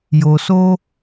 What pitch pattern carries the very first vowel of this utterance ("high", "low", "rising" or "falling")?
low